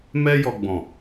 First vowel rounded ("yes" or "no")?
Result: no